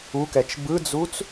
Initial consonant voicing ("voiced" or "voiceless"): voiceless